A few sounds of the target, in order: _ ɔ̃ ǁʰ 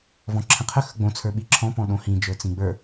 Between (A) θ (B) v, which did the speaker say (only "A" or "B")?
B